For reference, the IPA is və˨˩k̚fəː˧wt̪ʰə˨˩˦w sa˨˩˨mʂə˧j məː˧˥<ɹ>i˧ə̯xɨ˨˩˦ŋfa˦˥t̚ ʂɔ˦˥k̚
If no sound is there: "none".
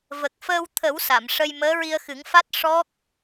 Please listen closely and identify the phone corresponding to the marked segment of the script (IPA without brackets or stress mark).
ɹ